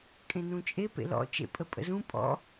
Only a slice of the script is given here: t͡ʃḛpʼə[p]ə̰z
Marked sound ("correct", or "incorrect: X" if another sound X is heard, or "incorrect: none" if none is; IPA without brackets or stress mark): incorrect: pʼ